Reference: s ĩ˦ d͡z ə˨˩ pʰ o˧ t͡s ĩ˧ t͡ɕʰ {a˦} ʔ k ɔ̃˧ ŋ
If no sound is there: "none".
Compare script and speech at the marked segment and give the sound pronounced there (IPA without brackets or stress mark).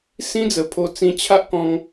a˦